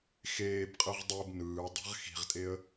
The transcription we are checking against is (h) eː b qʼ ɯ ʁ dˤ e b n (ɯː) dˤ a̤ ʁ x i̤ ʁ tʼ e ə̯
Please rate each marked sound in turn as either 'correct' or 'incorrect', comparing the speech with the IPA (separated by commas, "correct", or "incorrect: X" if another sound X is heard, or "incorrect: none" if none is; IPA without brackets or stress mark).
incorrect: x, correct